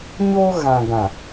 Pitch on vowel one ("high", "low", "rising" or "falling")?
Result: high